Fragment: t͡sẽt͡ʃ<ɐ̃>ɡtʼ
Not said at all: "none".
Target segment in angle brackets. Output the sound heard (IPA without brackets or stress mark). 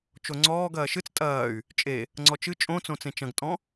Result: ɐ̃